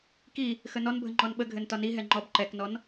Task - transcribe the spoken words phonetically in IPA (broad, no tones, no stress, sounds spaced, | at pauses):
k i | x ə n ɔ n bʱ ə ŋ͡ǃ ɔ n ɓ ə ɡʱ ɘ n t ɒ n i ɦ ɛ ŋ͡ǃ ɔ b ǃ ɛ k n ɔ n